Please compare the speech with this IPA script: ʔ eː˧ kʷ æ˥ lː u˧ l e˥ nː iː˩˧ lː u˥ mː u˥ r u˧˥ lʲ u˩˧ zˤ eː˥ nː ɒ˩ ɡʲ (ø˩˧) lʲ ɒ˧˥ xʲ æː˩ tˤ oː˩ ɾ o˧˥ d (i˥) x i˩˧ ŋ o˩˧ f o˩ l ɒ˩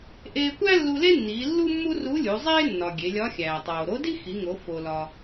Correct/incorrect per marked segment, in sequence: incorrect: e˩˧, correct

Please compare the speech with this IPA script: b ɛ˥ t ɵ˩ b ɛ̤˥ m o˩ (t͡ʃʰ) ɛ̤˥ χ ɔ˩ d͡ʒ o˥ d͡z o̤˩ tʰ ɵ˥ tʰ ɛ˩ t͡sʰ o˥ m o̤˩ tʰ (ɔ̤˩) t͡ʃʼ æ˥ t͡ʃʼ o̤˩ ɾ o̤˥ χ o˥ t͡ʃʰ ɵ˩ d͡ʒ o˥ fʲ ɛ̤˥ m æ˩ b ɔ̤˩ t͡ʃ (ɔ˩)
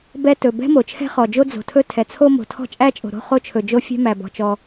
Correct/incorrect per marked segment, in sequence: correct, incorrect: ɔ̤˥, correct

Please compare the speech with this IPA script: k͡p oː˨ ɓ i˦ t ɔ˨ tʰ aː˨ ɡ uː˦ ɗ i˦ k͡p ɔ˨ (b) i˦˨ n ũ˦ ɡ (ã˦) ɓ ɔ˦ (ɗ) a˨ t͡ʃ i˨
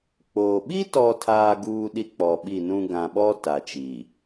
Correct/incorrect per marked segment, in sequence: incorrect: ɓ, incorrect: ã˨, incorrect: t

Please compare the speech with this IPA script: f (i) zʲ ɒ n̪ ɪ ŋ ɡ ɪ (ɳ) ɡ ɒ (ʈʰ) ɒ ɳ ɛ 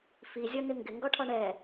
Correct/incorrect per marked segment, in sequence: correct, incorrect: ŋ, correct

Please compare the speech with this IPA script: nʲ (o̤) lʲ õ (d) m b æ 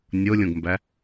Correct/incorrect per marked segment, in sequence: incorrect: o, incorrect: ɡ

